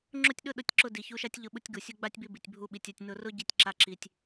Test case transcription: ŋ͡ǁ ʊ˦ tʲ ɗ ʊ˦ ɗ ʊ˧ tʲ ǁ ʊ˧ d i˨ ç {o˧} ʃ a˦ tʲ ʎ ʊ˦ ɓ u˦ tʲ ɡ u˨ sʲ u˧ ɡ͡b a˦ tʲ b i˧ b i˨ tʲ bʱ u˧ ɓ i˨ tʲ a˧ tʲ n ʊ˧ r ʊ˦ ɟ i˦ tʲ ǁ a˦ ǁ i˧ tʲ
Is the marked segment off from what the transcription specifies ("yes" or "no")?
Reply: yes